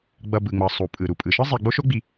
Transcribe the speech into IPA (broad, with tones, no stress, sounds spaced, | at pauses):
ɡ͡b ʌ˨ b ɯ˩ ŋ͡m ʌ˩ sˤ u˩ pʼ ɯ˩ ɾ u˩ pʼ ɯ˩ ʃ ɯ˥ zˤ i˨ ɡ͡b o˦ ʃ o˦ ɡ͡b i˨